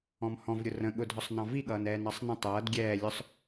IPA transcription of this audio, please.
ɔ̃ m h ɔ̃ v ɾʲ ʊ r ə̃ ɠ ʊ dʱ ɔ sˤ n ɑ̃ v i ɠ ʌː n ɛː n ɑ sˤ n ə̃ tˤ ʌː d ɡʲ ɛː lʲ ʊ sˤ

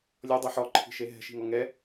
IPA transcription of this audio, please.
lʲ ɔ dˤ i ħ ɔ ǃʰ i̤ ʃ e ɦ ɛ̤ ʃ i̤ ŋ ɔ ŋ ɛ

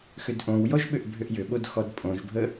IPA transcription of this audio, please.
x ʏ d ʔ õ w j ɔ ʒ ɓ ʏ ʔ bʱ ʏ ʔ j ʏ ɓ o d x ɔ d pʼ õ ʒ bʱ ə

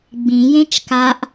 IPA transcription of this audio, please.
ɡ͡b ĩ j ẽ t͡ʃ k a ʔ

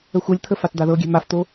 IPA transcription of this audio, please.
ə xʷ ɤ lʲ t̪ʰ ə f a t d̪ a ð ɤ ɡʲ ɛ̤ m a f t̪ o

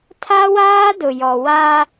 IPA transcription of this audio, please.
tʰ a˦ w aː˦ d ʊ˨ j ɔ˨ w a˦

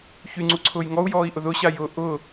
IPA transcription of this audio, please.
ç y ŋ͡ǀ u ǀʰ ʊː j ŋ ɔ u̯ j ɔː i̯ ʔ ʊ ð ʊ ɕ a j ʊ ʔ ʊ

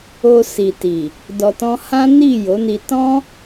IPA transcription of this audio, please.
o˧ s i˨ t i˨ | d ɔ˨ t ɔ̃˧ h ã˦ n i˦˨ j o˨˦ n i˧ t ɔ̃˦

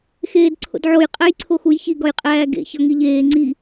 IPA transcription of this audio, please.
x eː d ǀʰ o̰ d ʕ o j qʼ æ j ǀʰ o x u j ç i ɡ ɒ j qʼ æː ɡ ḛ ç ɒ ŋ i ʎ eː ŋ͡ǀ i

